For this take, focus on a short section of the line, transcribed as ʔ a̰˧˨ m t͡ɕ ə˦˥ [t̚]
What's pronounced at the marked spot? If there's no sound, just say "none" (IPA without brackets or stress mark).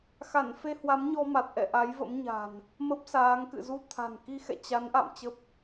p̚